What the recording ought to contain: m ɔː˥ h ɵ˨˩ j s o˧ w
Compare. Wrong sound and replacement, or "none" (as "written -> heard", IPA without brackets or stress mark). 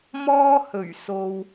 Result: j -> ɥ